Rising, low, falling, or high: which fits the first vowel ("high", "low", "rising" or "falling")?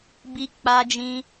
high